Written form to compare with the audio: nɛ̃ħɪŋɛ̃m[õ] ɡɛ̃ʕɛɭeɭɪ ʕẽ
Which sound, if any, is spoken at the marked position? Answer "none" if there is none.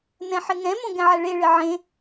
õ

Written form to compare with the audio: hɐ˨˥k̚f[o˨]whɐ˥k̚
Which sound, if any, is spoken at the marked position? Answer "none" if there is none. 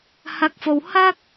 o˨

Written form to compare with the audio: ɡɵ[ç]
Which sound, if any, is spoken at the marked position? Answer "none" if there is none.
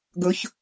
ç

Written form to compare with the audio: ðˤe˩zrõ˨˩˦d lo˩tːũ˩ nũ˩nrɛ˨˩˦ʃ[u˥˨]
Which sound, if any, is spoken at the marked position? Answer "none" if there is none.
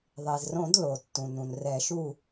u˥˨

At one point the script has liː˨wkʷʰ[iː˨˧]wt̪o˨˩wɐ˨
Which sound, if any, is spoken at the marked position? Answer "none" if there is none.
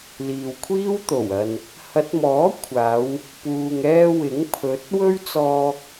iː˥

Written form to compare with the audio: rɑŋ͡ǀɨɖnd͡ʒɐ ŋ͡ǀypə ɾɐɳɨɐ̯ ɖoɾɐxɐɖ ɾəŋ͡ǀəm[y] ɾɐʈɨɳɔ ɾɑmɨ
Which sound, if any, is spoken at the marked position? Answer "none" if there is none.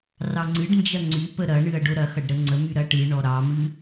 y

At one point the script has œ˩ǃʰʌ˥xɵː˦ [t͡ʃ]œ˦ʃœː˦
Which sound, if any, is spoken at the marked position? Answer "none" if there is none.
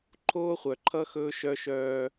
ʃ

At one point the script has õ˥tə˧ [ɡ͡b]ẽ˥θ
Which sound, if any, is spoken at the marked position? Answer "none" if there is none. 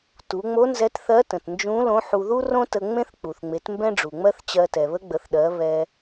ŋ͡m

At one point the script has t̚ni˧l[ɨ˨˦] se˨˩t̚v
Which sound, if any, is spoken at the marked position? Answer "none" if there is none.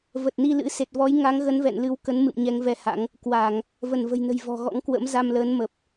ɨ̰˧˥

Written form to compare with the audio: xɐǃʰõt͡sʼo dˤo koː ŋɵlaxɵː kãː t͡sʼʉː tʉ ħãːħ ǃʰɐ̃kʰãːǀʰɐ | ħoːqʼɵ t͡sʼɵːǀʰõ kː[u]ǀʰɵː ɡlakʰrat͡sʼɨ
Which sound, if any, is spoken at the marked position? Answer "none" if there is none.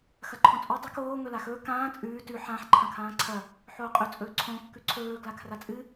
ʉ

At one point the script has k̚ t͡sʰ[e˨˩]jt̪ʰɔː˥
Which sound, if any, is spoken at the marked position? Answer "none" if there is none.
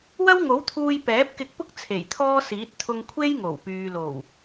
e˨˩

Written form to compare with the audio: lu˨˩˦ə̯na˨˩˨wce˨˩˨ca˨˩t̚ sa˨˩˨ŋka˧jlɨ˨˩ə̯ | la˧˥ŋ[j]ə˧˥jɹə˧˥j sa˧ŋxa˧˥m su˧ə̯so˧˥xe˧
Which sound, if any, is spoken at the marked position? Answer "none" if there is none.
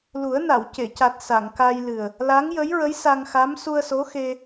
j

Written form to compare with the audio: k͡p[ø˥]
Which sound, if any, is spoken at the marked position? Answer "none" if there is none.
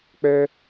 ø˥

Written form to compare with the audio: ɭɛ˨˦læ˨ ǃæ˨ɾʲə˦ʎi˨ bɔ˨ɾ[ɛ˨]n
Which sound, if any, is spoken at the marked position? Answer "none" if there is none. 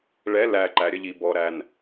æ˨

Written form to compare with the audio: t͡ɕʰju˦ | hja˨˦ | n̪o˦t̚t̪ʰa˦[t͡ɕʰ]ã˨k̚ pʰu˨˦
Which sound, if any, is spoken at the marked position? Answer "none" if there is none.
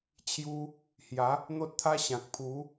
ɕ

